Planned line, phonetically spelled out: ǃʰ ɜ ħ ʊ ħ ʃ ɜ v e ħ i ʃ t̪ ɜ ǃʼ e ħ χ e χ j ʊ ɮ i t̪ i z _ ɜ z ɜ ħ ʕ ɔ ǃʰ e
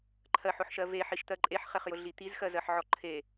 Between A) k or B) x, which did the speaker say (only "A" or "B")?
B